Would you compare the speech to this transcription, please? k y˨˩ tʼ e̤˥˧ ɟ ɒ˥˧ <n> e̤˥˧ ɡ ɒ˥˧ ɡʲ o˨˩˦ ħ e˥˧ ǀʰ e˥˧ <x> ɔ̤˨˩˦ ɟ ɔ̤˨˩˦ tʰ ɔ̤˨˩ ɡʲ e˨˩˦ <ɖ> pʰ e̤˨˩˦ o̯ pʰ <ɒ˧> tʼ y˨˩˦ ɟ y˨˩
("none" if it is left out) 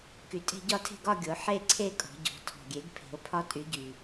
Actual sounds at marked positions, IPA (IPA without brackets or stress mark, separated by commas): tʰ, kʼ, ɡ, ɒ˧